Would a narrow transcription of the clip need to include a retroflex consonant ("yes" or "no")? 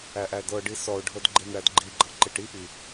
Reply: yes